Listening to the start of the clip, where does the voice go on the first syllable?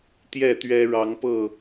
falling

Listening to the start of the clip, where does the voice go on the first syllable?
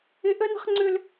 high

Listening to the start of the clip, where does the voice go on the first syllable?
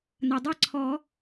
low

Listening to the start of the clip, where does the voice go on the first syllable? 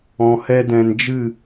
low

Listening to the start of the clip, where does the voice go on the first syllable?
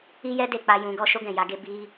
high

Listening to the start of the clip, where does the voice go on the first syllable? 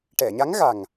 low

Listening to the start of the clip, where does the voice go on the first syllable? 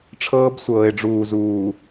high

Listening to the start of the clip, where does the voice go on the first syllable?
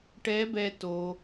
rising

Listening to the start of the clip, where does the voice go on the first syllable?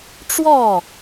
falling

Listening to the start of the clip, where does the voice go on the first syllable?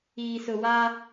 low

